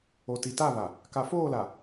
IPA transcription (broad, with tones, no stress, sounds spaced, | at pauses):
o˨ t i˨ t a˦˨ β a˨ | k a˨ f oː˦˨ l a˨